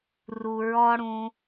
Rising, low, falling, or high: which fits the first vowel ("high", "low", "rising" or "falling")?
low